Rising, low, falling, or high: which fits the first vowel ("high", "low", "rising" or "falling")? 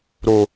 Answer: low